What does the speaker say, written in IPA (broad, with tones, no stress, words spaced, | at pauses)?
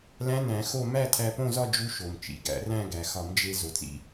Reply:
læ̃˦˥næ̃˨˩˦xo˥˧ mæ˥˧tʰæ˧põ˥˧zɒ˥˧ d͡ʒu˦˥ʃo˩m t͡ʃḭ˩ɡæ̰˨˩˦ræ̃˥˧ ɡæ˩xɒ˨˩˦md͡ʒe˧ zo˩t͡sḭ˧